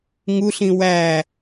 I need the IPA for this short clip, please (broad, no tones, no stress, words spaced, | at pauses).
ŋuɬĩ wæ